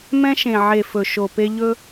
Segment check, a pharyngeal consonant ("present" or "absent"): present